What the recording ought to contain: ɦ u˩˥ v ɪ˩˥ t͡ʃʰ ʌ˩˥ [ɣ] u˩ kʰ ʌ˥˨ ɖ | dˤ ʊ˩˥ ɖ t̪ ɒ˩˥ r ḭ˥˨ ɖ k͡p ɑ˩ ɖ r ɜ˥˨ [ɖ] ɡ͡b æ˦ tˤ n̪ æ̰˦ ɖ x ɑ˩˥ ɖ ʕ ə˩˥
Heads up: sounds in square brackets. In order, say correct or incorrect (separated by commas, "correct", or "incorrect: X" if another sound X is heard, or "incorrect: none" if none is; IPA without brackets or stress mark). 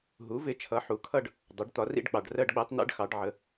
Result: incorrect: ħ, correct